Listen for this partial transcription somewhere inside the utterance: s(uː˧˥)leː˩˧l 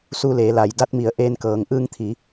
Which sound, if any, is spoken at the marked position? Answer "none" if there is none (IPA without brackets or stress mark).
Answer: uː˧